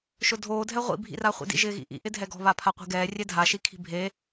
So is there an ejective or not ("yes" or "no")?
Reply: no